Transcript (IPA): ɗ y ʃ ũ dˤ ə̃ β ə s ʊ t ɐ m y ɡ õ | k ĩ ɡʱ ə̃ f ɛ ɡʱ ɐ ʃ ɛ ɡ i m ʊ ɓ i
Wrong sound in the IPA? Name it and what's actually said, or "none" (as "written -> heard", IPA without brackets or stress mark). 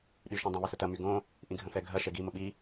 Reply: k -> ʔ